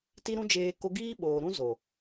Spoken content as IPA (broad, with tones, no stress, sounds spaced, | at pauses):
t i˦ ɾ ũ˦ d͡ʒ eː˧ k o˧ ɡ iː˦ ɓ oː˨ ɾ ũ˦ z o˨